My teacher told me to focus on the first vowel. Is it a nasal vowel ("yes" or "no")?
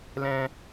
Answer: yes